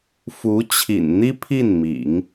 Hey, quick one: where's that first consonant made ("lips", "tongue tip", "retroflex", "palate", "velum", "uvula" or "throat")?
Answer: lips